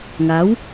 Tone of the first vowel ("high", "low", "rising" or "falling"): rising